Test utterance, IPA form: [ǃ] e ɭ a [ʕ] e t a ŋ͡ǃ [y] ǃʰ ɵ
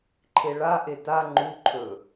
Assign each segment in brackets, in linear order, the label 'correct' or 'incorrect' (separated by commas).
incorrect, incorrect, incorrect